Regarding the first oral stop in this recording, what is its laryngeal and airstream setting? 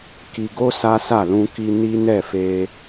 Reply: plain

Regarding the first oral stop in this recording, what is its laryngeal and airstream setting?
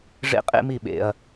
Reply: ejective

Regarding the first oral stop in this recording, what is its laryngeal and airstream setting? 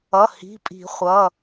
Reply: ejective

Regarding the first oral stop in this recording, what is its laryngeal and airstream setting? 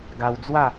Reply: plain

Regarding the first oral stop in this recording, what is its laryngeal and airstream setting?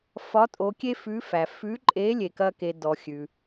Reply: ejective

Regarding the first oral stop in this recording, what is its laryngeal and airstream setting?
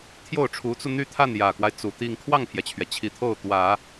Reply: aspirated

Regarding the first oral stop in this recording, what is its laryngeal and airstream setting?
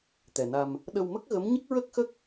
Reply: plain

